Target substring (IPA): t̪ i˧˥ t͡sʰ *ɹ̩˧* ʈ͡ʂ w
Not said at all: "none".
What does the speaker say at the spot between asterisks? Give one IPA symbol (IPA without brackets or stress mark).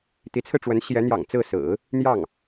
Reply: ɹ̩˧